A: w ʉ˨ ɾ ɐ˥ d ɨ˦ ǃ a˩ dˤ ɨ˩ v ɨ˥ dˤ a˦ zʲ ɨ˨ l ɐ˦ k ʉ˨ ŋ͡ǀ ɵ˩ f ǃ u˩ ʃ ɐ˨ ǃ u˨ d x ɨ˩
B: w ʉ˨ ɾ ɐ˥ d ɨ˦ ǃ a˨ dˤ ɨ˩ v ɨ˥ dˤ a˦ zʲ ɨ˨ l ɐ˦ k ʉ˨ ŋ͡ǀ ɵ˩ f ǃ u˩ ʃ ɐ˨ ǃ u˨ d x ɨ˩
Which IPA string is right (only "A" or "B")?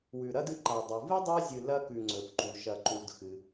B